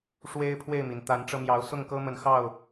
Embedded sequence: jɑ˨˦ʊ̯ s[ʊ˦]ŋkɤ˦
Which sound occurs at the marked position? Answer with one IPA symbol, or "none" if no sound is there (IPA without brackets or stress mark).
ʊ˥˨